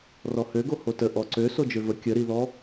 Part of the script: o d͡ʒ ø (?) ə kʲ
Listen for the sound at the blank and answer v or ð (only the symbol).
v